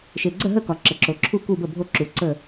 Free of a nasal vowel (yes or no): yes